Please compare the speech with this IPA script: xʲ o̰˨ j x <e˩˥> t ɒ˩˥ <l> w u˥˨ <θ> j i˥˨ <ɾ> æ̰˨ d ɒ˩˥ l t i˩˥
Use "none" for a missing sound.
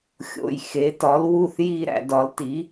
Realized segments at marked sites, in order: e˩˥, l, θ, ɾ

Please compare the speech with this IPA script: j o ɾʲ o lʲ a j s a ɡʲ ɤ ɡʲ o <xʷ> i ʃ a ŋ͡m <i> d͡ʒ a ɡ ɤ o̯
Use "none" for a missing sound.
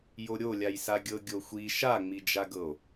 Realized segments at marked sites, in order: xʷ, i

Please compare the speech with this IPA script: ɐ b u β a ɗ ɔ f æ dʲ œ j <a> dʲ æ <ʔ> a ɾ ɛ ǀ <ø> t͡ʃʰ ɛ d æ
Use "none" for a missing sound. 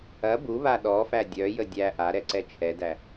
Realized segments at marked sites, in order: ə, ʔ, ɛ

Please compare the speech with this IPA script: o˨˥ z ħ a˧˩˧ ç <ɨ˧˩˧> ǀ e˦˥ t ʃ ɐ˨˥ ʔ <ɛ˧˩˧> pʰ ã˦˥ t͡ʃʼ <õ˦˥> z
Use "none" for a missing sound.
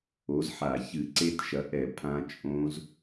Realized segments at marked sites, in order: ɨ˧˩˧, ɛ˧˩˧, õ˦˥

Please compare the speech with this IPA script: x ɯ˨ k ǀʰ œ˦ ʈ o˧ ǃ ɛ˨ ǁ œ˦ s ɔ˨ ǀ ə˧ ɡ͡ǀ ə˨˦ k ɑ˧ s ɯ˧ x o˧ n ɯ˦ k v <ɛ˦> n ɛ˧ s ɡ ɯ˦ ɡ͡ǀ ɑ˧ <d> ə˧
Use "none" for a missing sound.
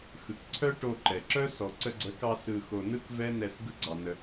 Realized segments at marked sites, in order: ɛ˦, n

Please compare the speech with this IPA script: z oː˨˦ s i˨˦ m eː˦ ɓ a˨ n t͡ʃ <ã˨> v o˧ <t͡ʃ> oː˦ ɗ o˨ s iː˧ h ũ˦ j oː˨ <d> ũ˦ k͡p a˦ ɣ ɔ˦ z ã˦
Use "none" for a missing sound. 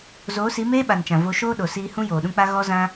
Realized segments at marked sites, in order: ã˨, ʃ, ɗ

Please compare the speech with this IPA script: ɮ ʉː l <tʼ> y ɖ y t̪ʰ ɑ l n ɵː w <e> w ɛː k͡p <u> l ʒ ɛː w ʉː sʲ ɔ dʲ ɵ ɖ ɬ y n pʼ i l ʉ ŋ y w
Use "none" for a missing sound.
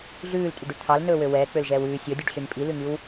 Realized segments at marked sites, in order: tʼ, ø, ø

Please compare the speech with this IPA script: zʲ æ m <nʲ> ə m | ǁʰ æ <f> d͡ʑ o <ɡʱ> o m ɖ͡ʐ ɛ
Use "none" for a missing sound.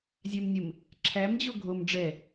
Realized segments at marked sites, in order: nʲ, m, ɡʱ

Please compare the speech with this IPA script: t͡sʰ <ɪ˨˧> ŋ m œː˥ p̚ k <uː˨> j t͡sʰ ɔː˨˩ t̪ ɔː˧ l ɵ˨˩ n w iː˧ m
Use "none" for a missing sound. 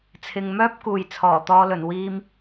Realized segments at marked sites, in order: ɪ˨, uː˨

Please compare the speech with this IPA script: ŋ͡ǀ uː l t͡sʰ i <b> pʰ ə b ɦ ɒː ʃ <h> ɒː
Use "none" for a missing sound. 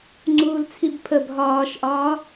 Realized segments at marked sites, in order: b, ʔ

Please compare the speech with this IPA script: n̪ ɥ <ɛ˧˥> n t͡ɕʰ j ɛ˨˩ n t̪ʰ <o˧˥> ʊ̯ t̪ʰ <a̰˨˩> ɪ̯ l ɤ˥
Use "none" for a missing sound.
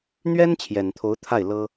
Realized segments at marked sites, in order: ɛ˥, o˧˥, a˥˩

